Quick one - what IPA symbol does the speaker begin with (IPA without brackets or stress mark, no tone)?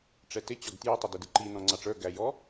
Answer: ʈ͡ʂ